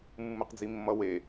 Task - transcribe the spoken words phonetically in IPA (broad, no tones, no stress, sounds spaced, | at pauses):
mː ɯ q d͡z i mː ʌ w e